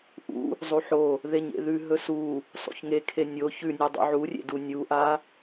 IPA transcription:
ʔ ṵ | zˤ u ħ o | ð e ɲ ḛ ð ʉ ɦ ɵ s u | sˤ ṵ ç ŋ e kʰ e nʲ o ç ʉ nʲ ʉ dˤ ṵ ʕ u rʲ ḛ d u nʲ u ʔ a

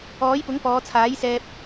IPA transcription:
ɔː˨˥ j p ʊ˨˥ ŋ p ɔː˨˧ t͡sʰ aː˨˥ j s ɛː˧ p̚

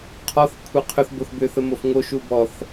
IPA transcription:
qʰ ɔ θ kʷʰ ɛ qʰ ʏ θ b o θ b ʏ θ ə m o f ŋ o ʃ u b ɔ θ

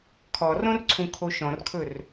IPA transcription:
kʰ ɔ r õ r ǀʰ ũ kʰ o ʃ ɔ̃ r kʰ ɵ r

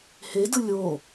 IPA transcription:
h e d ɯ lʲ o

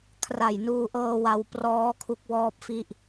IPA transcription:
kʰ r a˨˩ j n uː˧ ʔ ɤː˧ w a˧ w p r ɔː˦˥ kʰ u˦˥ k̚ w ɔː˥˩ p̚ f i˥˩ ʔ

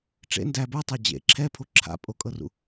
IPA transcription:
ʈ͡ʂ ḛ n d æ b ə˞ tˤ æ d͡ʑ ḛ ǁʰ ɛ pʰ o ǁʰ a̰ pʼ o kʼ ɤ r ṵ

